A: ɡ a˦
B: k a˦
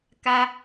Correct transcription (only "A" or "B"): B